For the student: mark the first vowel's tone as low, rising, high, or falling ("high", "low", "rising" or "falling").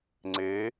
rising